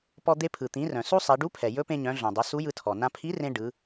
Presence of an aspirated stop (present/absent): present